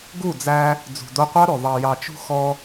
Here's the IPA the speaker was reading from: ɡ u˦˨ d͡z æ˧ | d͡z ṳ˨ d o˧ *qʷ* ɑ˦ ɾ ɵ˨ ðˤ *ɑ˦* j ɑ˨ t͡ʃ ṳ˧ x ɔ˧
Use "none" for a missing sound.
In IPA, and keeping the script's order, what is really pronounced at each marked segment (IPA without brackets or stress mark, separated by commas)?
qʷ, ɑ˨